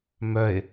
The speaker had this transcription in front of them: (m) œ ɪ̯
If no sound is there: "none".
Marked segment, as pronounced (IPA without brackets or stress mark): m